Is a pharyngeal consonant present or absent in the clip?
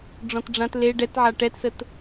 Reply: present